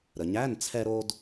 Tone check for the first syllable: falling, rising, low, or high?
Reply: low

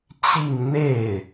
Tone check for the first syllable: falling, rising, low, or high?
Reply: falling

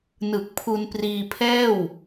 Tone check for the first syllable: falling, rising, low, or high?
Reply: low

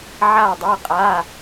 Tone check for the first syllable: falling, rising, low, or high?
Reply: falling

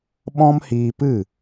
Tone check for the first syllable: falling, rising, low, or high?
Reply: high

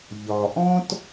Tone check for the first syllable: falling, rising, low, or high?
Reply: low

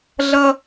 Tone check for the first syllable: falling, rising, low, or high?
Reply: high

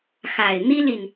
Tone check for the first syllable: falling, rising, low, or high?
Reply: low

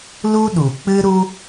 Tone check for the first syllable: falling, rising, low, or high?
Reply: high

